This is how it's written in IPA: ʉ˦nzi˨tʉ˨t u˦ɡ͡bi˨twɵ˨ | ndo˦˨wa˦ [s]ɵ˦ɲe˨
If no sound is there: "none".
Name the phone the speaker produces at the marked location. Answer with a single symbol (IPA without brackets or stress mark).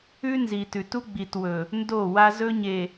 z